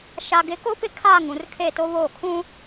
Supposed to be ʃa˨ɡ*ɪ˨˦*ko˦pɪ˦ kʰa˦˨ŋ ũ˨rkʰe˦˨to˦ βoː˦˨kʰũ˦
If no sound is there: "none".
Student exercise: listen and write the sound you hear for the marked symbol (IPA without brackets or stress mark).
ɪ˨˦